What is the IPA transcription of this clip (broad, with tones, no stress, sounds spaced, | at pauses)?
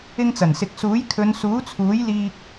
ɪ˧ ŋ t͡s ɐ˨˩ n s ɪ˨ k̚ s uː˨˥ j kʰ ɵ˨˧ n s uː˨˥ t͡sʰ uː˨˥ j l iː˥ k̚